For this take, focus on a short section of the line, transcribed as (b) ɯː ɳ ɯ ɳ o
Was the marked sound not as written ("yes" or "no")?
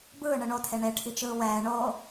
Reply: no